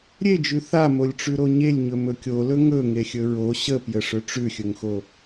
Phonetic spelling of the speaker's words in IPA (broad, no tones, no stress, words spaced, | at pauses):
ɾʲed͡ʒʉ θamolʲʈ͡ʂʉɾo ɲelʲɲɵmɵ kʲolɵ ŋɵŋexʲɵ ɹo ɕəpjəʂɵ ʈ͡ʂʉxʲɵŋxo